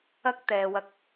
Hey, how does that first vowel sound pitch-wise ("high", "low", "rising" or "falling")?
high